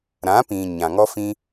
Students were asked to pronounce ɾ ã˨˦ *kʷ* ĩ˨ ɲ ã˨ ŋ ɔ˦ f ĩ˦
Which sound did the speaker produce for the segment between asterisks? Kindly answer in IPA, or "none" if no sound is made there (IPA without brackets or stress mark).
p